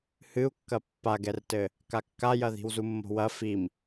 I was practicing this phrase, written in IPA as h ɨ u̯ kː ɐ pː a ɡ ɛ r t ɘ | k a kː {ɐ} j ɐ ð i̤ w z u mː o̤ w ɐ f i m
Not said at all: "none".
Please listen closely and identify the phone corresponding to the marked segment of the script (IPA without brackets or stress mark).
a